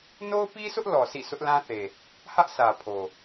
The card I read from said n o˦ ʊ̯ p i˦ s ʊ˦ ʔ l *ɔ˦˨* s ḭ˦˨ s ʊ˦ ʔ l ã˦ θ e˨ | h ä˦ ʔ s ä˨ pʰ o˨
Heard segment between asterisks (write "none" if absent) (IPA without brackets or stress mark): ɔ˨